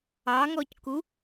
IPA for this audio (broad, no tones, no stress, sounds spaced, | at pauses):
ɑ ŋ ɔ c k u